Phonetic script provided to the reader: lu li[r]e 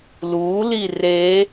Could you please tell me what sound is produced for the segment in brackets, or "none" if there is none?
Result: r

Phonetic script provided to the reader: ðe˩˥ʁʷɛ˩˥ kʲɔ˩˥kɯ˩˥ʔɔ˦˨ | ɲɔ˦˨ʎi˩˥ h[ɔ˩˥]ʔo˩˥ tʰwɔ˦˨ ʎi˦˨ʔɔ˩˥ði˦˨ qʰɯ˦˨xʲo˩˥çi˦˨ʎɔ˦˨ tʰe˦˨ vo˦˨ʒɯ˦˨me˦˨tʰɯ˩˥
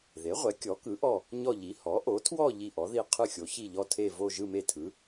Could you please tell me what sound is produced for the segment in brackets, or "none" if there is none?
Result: ɔ˩˥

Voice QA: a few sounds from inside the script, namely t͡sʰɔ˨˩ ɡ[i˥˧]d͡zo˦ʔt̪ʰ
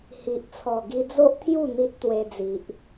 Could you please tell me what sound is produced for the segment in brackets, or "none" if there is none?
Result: i˧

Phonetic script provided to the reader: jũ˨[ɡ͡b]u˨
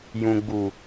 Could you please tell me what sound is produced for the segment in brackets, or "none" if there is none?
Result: ɡ͡b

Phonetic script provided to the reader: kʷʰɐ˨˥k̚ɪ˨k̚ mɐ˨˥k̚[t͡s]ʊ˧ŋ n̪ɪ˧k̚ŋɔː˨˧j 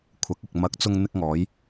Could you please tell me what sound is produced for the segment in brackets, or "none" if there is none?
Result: t͡s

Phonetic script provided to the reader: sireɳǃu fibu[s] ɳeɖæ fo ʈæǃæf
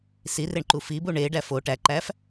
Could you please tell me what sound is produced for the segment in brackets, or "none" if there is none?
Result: none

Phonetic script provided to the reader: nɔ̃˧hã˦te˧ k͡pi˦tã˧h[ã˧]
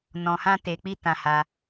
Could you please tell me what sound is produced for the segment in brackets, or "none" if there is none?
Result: a˧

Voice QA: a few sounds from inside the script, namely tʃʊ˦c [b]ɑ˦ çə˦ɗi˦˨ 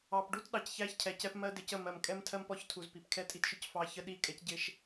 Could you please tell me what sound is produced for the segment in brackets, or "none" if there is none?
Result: f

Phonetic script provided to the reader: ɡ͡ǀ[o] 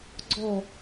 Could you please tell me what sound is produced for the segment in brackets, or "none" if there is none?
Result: ɔ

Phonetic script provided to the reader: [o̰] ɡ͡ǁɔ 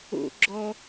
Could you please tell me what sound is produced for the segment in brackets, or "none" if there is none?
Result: o̰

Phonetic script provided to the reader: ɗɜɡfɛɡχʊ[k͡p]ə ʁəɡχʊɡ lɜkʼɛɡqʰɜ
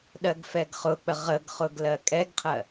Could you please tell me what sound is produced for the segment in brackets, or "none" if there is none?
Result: k͡p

